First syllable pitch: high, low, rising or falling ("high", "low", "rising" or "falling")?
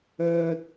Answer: low